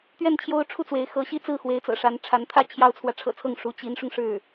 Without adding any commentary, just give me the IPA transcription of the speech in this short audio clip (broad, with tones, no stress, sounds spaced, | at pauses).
t̪ ɥ ɛ˥˩ n t͡ɕʰ j o˥ ʊ̯ ʈ͡ʂʰ u˥˩ t͡s w e˧˥ ɪ̯ x ɤ˧˥ ɕ i˥ t͡s ɹ̩˥˩ x w e˧˥ ɪ̯ t͡s ɤ̰˨˩ ʂ a˧˥ n ʈ͡ʂʰ a˧˥ n t̪ʰ ä˥˩ t͡ɕʰ j ɑ˥ ʊ̯ t͡sʰ w ä˨ ʈ͡ʂʰ ɤ̰˨˩ t͡sʰ ɤ˥˩ ŋ ʂ u˧˥ t͡ɕ i˧˥ n ʂ ʊ˧ ŋ ʂ ɻ̩˥˩